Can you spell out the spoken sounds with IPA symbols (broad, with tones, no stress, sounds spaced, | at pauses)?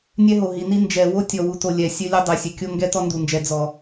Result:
nʲ ɛ˦ ɦ o˨ ɦ i˨ n i˦ n d͡ʒ ɛ˨ w o˦ tʲ ɔ˨ w u˨ t o˨ lʲ ɛ˨ sʲ ɵ˦ lʲ ɵ˦ dˤ ɛ˨ sʲ ɵ˨ kʲ o˦ ŋ ɡ ɛ˦ t ɔ˦ n d u˨ n d͡ʒ ɛ˨ d͡z ɔ˨